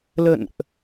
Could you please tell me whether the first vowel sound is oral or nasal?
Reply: oral